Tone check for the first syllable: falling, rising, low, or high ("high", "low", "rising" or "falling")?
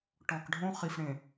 low